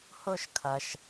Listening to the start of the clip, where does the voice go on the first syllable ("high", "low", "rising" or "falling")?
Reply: falling